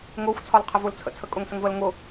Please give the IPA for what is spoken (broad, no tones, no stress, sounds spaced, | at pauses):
ŋ ʊː xʷ t͡sʰ ɒ l qʰ ə v ʊ l t͡sʰ ə̰ t͡sʰ ə kʼ ʊː ŋ s ə ŋ v ə l ŋ ʊ